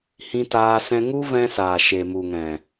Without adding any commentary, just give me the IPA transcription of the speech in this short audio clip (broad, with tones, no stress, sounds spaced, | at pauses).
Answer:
h ĩ˧ t aː˧ s ɛ̃˧ ŋ u˦ v ɛ̃˧ s aː˨ ʃ e˨ m u˨ ŋ ɛ̃˨